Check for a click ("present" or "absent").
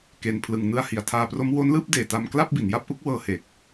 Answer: absent